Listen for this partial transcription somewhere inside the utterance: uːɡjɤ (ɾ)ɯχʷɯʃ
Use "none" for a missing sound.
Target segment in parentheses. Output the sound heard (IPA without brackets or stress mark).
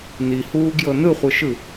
n